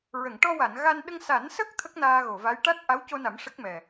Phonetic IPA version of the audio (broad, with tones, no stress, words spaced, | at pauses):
ɹə˨˩˨ŋʈɔ˧wa˨˩˨n ɣa˧n ɗə˧ŋsa˨˩˦nsə˦˥k̚ t̪ʰə˦˥k̚naː˧ɣo˨˩˨va˧˥j ʈa˦˥t̚ ʔa˧˥wco˧na˨˩˦m ʂə˦˥k̚mɛ˨˩